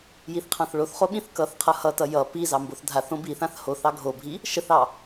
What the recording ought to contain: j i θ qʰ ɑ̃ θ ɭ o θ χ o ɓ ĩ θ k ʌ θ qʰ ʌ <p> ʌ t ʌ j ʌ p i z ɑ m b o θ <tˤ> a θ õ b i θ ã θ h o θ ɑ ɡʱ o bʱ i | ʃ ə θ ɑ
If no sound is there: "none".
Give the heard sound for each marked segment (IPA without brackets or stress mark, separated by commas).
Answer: h, dʱ